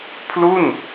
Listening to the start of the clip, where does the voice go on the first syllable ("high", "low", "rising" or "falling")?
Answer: falling